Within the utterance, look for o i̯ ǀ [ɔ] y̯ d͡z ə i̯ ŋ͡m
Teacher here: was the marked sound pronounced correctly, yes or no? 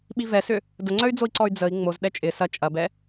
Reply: yes